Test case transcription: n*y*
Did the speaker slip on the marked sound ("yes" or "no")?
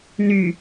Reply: no